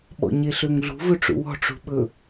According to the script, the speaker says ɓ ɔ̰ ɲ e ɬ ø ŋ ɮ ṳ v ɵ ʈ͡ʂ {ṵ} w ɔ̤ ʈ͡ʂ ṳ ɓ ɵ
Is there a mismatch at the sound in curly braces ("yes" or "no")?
no